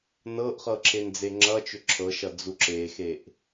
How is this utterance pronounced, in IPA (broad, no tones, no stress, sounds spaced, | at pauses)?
n ɤ ʔ χ ɤ ǁʰ e n d͡z e ŋ͡ǁ ʌ t͡ʃ ʏ ǁʰ ɤ ʃ ʌ d͡z u ǁ e x e ʔ